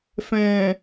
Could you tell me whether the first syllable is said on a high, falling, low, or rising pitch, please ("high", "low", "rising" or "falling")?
low